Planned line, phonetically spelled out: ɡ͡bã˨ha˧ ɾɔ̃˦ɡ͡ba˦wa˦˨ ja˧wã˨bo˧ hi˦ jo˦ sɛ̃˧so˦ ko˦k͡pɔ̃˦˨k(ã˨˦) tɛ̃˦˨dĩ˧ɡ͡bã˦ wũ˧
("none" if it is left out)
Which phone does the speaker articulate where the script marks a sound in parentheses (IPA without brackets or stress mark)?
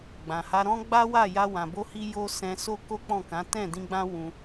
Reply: ã˨˦